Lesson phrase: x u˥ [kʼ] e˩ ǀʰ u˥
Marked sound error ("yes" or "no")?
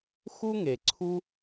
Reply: yes